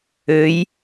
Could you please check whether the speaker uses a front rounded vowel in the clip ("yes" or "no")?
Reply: yes